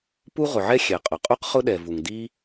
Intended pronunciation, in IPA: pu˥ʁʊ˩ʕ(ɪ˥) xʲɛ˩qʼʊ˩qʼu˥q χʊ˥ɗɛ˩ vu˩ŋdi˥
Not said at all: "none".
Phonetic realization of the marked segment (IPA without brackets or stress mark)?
ɛ˥